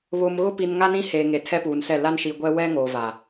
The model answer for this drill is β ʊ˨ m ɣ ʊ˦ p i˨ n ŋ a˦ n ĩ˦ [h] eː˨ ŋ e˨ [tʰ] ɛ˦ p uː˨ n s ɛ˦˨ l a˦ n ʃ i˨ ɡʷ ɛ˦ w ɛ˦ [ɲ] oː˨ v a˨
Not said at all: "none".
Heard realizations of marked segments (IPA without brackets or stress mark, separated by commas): h, tʰ, ŋ